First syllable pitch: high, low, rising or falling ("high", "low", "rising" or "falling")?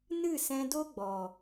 falling